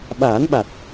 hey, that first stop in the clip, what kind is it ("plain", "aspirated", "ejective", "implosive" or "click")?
implosive